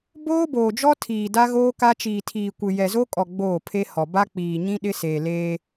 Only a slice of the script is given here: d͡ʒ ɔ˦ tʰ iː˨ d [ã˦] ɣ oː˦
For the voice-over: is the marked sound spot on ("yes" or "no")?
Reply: no